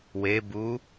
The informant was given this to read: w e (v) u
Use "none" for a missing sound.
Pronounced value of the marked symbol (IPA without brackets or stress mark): b